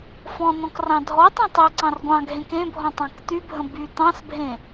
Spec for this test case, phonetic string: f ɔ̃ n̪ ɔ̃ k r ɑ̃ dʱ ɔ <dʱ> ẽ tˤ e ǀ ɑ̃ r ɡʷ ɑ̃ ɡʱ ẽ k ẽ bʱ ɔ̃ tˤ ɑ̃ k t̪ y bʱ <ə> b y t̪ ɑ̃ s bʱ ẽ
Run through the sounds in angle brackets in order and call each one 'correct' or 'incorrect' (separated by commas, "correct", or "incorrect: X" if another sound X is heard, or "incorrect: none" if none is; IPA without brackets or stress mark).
incorrect: tˤ, incorrect: ə̃